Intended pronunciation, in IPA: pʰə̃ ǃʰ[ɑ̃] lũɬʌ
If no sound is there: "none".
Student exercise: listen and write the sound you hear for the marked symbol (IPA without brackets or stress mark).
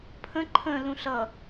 ə̃